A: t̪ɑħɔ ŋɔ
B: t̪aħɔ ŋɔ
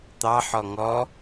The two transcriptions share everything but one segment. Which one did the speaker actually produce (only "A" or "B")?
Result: A